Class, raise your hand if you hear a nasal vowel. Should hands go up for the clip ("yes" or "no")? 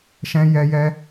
yes